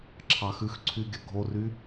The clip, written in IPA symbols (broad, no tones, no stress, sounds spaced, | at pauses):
ǁʰ ɑ x ʉ x ǀʰ y ɡʲ œ ɡʱ o r y